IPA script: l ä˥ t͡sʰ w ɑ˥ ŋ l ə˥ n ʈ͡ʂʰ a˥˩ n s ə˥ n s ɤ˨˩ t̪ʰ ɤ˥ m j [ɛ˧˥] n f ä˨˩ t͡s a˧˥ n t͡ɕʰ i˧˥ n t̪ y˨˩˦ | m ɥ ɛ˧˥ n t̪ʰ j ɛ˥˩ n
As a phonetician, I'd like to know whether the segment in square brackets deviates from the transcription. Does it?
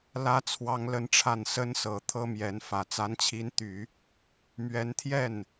no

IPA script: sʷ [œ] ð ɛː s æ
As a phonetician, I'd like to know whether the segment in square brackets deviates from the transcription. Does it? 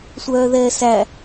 yes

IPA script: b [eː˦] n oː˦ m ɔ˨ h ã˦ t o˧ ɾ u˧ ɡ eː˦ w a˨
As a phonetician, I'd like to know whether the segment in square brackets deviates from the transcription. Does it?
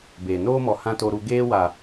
yes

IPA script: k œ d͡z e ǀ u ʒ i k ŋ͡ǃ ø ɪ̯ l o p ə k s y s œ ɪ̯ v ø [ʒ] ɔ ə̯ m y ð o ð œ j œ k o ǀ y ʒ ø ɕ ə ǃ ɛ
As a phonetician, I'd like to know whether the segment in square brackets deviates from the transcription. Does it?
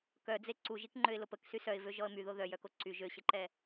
no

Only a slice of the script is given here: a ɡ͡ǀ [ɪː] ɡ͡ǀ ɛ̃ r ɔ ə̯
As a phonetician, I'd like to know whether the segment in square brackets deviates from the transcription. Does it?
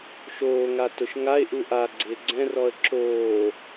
no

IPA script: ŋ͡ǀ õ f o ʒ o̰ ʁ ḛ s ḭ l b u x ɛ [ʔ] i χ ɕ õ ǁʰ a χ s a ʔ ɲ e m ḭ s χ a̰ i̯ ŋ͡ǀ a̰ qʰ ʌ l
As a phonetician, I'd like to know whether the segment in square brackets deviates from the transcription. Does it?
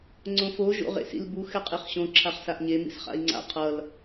yes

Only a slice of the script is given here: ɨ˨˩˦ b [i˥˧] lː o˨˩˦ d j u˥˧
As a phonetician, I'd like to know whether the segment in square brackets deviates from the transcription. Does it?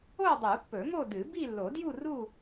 no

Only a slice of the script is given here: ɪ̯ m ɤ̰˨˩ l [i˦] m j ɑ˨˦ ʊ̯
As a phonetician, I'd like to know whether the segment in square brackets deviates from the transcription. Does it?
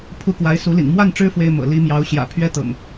yes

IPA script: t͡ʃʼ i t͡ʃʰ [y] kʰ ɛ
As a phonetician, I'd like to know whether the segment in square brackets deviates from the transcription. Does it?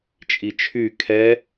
no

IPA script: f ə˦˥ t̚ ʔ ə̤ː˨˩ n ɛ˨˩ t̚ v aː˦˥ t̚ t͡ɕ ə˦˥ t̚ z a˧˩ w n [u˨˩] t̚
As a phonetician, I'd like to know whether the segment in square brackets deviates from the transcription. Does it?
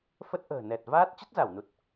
no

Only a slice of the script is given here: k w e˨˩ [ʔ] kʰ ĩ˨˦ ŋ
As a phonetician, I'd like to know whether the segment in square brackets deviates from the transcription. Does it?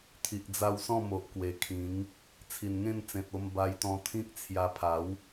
yes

